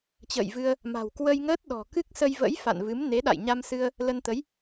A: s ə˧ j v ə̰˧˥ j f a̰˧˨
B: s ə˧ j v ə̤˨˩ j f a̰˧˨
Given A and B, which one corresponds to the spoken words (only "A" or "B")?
A